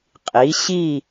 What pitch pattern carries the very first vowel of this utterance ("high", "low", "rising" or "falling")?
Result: rising